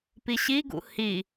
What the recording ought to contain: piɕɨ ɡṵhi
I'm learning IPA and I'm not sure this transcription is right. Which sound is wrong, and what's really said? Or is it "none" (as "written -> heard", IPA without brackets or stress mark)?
ɨ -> i